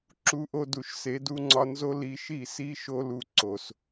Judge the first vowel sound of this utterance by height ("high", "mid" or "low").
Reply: high